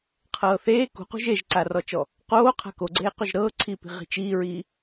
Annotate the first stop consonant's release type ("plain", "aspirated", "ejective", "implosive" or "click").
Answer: aspirated